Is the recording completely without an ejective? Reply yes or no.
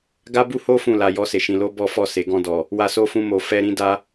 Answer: yes